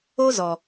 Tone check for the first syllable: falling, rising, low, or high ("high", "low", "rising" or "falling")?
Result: high